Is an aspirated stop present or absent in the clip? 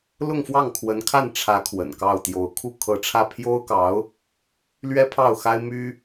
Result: present